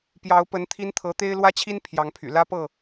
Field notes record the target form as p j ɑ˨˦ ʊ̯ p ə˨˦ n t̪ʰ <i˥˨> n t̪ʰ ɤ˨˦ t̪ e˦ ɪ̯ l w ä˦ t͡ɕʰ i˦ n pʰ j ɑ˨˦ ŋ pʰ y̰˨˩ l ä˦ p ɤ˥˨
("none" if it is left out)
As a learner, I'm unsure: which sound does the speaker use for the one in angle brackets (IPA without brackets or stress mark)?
i˦